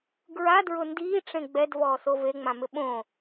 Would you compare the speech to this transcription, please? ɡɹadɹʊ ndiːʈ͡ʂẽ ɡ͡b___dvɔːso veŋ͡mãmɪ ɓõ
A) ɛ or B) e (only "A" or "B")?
A